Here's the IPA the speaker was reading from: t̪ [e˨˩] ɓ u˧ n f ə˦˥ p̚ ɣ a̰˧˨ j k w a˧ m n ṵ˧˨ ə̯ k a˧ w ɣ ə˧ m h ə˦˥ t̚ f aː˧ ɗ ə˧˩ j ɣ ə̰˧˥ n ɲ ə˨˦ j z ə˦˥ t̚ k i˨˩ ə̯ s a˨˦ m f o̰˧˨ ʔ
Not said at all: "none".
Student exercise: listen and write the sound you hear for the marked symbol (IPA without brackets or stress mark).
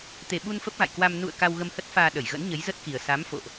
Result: e˨˩